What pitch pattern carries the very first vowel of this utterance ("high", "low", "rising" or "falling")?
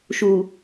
low